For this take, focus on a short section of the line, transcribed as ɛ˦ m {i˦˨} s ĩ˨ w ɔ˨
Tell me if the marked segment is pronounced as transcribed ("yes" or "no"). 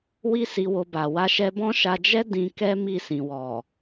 yes